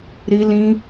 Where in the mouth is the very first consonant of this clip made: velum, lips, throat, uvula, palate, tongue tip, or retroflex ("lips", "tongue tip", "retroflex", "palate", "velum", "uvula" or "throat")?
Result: tongue tip